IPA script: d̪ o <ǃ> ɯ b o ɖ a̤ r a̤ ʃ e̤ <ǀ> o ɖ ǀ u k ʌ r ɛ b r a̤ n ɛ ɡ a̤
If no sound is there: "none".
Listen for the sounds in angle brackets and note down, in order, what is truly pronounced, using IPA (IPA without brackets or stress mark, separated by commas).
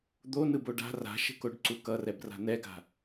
n, k